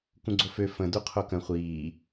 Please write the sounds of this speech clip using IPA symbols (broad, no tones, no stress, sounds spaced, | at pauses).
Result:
k ũ ɡ͡ǀ o f ø f ə̃ d u qʰ o k ə̃ χʷ iː